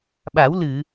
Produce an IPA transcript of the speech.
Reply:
ɓ a˨˩˦ w l ɨ˨˩˨

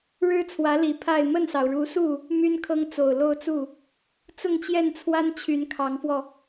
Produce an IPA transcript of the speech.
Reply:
ɻ ɻ̩˥ t͡sʰ w ä˧˥ l i˨˩ pʰ a˥˧ ɪ̯ m ə˥˩ n s ɑ˩ ʊ̯ ɻ u˧˥ s u˥˩ | m y˥ n kʰ ɤ˥ ŋ t͡s o˨˩ ʊ̯ l o˥˧ ʊ̯ t͡s u˥˩ | t͡s ʊ˥˧ ŋ t͡ɕ j ɛ˥˩ n t͡sʰ w a˥ n t͡ɕʰ y˧˥ n kʰ ɑ˧˥ ŋ f w ɔ˧

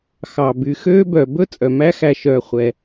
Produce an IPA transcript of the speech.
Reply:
x ɑ˩ b y˩ x øː˥ b œ˩ b ɵ˥ t͡sʼ œ˩ m æ˦ x æ˨ ʃ œː˨ χʷ ɛ˩

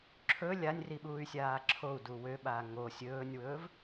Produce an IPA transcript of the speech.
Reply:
ǁʰ ɵ lʲ a nʲ r i ɓ uː y̯ sʲ aː ǁʰ o u̯ d u w ø ɓ aː ŋ o sʲ ɵː nʲ w ɵː v

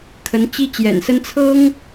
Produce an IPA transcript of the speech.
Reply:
kʰ ə˧˥ n t͡ɕ i˥ t͡ɕ j ɛ̰˨˩ n s ə˥ n t͡sʰ ɤ˥ ŋ

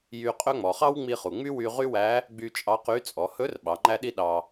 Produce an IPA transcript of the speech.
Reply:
j y˧ qʼ ɵ˥ ŋ͡m ɔ˩ χ ɑ˥ w ŋ͡m i˧ χ u˩ ŋ͡m y˥ w y˧ ʁ y˥ w æ˧˥ | ɡ͡b y˧ t͡ʃʼ ɑ˧˥ q y˧˥ t͡sʼ ɔ˩˧ h ɵ˧˥ r ɓ ɑ˩˧ ŋ͡ǃ æ˥ ɗ i˥ ɗ ɑ˧

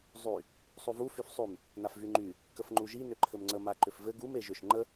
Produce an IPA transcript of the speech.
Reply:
zˤ y | sˤ u v u f y f sˤ y m | n a f v y ŋ͡ǃ y | k ə f ŋ͡ǃ u ʒ i n ʏ ǃʰ ɘ m ŋ͡ǀ ə m a ǃ ʏ f v ɘ ɡ u m e ʒ ʏ ʃ ŋ͡ǃ ə

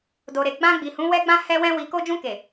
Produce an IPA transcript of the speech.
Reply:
d o˨ ɾ e˨ ɡ͡b ã˧ ɡ͡b i˨ h ũ˨˦ w ɛ˦ ɡ͡b ã˦ h ɛ˦ w ɛ̃˦ w i˧ k o˦ d͡ʒ ũ˧ k e˨

